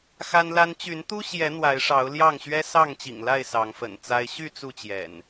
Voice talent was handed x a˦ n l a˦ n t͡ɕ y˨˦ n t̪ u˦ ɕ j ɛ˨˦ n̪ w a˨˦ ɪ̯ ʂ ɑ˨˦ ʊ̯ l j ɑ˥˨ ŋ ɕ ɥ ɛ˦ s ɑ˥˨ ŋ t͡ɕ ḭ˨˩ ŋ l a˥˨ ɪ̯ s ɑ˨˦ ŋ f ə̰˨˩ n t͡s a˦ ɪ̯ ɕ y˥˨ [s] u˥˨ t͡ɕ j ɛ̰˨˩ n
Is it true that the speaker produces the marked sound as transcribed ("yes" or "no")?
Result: no